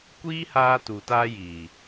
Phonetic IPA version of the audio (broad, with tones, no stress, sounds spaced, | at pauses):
kʷ iː˦ h aː˧ t u˨ t aː˧ j iː˨